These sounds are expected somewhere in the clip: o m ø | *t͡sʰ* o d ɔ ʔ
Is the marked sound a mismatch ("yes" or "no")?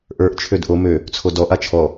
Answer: no